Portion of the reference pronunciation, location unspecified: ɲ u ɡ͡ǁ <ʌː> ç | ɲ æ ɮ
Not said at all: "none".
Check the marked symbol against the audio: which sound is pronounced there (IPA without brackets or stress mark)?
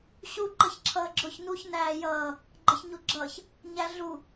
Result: ʌː